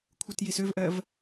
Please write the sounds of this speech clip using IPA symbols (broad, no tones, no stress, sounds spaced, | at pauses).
kʷʰ ɯ t j i s ø v ʔ ɜ v